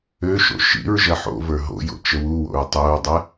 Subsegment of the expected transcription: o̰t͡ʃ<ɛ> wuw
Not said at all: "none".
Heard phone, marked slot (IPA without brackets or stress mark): ə